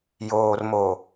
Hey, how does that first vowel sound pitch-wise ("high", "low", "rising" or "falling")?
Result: low